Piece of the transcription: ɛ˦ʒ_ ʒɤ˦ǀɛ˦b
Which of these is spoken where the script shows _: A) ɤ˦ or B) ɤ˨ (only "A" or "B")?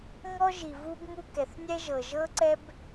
B